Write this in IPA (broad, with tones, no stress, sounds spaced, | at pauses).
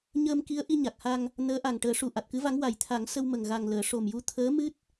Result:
ɲ əː˧ m k i˧˥ ə̯ ʔ i˧ ɲ a˨˩ k̚ h a˧ ŋ | n əː˧˥ ʔ a˨˩ ŋ ʈ əː˨˩˦ ʂ u˨˩ ʔ a˨˩ t̚ k ɨ˧˥ v a˧˥ ŋ w a˨˩ j t̪ʰ a˨˩˦ ŋ s ə˧ w m ə˨˩ ŋ ɣ a˨˩ ŋ l əː˨˩˨ ʂ o˨˩ m j u˧˥ t̪ʰ əː˧˥ m ɨ˦˥ t̚